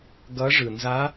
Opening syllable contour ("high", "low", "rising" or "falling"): rising